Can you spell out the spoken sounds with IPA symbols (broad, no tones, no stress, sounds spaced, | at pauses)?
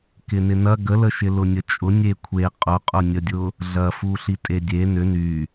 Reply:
k ɪ n ɪ n ɐ ɡ ə l ə ʃ ɪ l ʊ nʲ ə t͡ʃʼ ʊ nʲ e kʷʰ e qʼ ʊ qʼ ʊ nʲ ə dʲ ʊ | ɮ ɐ f u ɬ i tʼ e dʲ e n ʏ n y